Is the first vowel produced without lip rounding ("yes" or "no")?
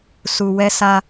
no